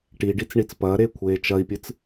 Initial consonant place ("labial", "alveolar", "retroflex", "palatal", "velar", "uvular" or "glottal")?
retroflex